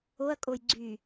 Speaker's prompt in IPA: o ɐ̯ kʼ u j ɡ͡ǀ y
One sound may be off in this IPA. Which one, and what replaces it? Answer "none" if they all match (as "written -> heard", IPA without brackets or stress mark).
u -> o